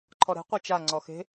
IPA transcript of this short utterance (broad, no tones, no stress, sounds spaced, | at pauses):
ǃʰ ɔ ɾ ɛ̤ qʷ e t͡ʃ a ŋ͡ǀ ɔ x e̤